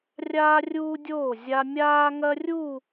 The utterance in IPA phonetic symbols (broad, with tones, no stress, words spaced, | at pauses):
rʲaː˦rʲuː˦dʲoː˦˨zʲa˦ mʲaː˦ŋɐ˦rʲu˦˨